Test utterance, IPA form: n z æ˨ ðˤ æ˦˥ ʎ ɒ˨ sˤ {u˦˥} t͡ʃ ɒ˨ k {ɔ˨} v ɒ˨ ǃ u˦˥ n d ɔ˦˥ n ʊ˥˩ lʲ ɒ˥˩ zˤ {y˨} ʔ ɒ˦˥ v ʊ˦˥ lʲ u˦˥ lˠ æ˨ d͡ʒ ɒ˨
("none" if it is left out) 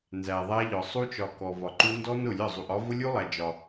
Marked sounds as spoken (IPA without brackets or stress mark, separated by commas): u˦˥, ɔ˨, u˨